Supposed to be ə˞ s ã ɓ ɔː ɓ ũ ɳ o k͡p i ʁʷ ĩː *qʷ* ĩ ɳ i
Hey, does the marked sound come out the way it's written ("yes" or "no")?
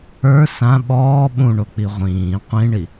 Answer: yes